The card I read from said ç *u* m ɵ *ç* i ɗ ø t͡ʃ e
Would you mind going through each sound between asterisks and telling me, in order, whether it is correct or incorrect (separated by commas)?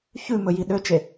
incorrect, incorrect